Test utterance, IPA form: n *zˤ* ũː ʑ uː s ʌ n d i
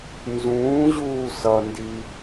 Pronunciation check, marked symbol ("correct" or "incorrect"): incorrect